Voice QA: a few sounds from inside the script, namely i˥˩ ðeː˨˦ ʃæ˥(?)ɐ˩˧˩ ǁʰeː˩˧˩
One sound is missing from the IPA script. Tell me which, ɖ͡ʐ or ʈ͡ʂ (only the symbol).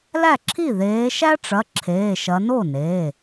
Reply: ʈ͡ʂ